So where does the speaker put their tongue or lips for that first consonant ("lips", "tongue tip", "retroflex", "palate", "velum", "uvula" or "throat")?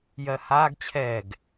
palate